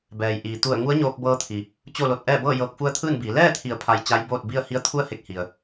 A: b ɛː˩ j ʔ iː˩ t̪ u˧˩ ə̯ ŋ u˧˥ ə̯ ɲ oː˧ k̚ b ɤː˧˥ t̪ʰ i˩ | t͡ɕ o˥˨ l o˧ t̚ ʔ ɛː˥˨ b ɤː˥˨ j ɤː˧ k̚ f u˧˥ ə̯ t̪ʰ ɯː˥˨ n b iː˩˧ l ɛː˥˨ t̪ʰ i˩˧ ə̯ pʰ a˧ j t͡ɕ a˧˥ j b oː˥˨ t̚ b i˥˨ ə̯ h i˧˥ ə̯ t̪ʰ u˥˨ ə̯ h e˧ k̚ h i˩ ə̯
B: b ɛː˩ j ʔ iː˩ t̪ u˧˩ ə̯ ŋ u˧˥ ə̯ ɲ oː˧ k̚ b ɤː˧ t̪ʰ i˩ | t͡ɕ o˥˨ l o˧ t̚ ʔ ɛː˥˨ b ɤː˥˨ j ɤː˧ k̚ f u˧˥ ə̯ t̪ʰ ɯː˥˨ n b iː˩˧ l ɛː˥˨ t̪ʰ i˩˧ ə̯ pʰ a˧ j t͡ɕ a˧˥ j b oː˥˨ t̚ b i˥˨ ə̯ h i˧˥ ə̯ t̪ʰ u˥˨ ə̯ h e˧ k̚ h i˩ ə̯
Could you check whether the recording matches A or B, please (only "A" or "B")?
B